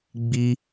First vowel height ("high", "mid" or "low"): high